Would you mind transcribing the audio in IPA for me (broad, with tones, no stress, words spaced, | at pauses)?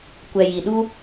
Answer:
kʷɛ˨ji˨ɗu˦